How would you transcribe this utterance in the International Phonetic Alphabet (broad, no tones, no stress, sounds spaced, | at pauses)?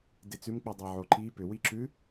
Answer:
d e t͡s ʉ m k͡p i dˤ e ʕ o ǃ i p ʏ w i ǁ ʉ